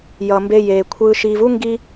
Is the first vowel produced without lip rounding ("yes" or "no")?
yes